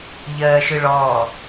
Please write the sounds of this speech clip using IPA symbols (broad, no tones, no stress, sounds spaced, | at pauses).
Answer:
ʎ ɜː ʃ ɯ ɭ ɔː